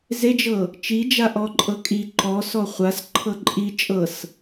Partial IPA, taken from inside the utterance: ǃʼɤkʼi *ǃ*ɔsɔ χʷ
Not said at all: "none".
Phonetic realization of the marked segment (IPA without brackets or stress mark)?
ǃ